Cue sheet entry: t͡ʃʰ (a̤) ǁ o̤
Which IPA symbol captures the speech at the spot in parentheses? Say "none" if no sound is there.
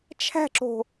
æ̤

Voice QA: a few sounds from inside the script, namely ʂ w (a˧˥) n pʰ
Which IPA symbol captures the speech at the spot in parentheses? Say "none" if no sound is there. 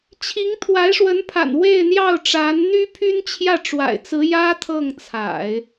ə˧˥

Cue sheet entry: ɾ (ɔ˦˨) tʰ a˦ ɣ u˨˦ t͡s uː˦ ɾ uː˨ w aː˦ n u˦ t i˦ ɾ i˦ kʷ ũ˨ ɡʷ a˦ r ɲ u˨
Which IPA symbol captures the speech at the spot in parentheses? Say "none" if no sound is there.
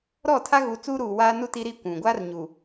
ɔ˦˨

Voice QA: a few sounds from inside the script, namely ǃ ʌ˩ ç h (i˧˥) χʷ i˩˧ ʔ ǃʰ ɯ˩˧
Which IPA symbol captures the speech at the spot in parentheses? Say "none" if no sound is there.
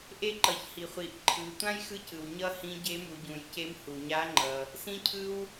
i˩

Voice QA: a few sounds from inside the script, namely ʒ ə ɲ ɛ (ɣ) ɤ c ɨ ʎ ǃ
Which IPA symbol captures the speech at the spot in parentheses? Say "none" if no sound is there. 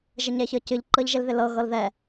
ç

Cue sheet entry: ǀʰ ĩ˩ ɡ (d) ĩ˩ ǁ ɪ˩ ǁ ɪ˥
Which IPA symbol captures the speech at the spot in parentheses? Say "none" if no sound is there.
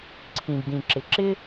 d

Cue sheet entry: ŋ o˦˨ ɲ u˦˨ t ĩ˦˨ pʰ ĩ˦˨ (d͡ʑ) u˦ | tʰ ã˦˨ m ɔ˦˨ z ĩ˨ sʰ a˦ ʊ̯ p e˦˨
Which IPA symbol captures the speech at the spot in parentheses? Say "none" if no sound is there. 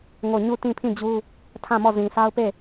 d͡ʑ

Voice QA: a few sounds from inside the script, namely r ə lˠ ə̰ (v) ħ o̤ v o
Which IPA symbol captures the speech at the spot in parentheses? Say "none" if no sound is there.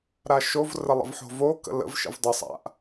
v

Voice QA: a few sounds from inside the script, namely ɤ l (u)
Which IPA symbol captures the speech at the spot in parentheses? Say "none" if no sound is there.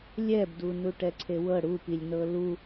u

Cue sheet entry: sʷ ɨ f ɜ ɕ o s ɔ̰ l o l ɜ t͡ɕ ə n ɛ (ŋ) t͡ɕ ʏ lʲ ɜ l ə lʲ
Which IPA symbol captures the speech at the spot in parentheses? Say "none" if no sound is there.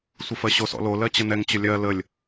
ŋ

